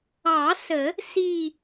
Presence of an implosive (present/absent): absent